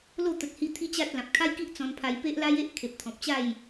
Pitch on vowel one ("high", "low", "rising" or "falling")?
falling